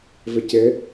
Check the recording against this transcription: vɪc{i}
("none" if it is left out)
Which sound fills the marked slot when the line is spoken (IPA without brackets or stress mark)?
ɪ